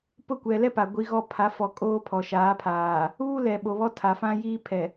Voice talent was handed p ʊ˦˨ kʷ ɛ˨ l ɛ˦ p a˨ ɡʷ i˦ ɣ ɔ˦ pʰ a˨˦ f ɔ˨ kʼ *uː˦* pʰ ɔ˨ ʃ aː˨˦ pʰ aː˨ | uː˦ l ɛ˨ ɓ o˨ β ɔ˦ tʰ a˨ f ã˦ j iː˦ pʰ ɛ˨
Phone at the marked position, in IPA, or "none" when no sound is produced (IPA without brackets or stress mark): oː˦